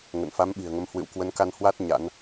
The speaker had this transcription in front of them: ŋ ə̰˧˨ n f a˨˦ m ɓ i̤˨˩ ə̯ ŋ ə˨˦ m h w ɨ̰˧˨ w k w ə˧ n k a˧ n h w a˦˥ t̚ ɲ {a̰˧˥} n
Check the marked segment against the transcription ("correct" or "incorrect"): correct